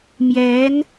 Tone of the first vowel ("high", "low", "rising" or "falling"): rising